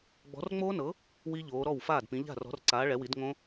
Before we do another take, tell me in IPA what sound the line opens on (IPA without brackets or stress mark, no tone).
ɡ͡b